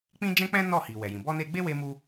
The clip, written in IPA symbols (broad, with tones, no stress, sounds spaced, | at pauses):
k͡p ĩ˦ d͡ʒ ɛ̃˦ k͡p ɛ̃˦ n ɔ˦˨ h i˨ w ɛ˨ j ĩ˨ b ɔ˧ n e˧ ɡ͡b e˦ w e˧ m u˦